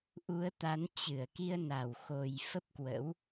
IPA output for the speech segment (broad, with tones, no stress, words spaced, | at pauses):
ʔu˨˦ə̯t̪a˨˦nt͡ɕɨ˧˩ə̯ ki˧ə̯na˨˩w xo˨˩j fə˦˥p̚kwə̰˧˥w